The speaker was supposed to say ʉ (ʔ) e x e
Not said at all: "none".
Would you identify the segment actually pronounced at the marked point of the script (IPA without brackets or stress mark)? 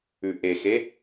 ʔ